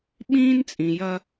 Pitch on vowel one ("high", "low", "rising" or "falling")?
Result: high